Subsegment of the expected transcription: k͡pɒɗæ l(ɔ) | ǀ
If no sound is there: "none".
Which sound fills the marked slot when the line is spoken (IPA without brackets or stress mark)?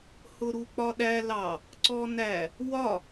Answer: ɑ